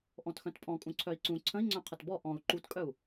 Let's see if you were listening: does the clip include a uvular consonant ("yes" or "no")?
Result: yes